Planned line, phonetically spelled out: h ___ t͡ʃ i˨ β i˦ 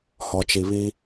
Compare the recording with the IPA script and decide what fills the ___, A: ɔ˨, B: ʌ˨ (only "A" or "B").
A